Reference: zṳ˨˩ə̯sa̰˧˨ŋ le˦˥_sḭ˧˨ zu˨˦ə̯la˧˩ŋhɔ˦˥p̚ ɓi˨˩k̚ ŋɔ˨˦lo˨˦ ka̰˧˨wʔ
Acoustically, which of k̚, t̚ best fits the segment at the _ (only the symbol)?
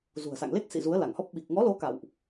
k̚